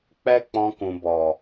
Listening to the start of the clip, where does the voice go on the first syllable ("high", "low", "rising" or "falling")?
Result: high